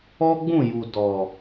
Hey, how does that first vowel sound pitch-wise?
high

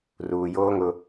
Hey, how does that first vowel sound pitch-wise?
low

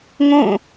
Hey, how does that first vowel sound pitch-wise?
falling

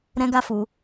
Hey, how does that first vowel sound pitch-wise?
high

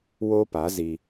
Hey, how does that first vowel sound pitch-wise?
high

